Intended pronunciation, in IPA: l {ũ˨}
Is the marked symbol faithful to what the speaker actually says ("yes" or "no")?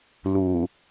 no